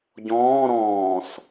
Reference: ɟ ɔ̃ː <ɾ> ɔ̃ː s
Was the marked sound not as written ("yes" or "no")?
no